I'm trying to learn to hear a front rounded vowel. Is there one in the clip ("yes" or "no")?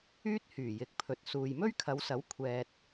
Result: yes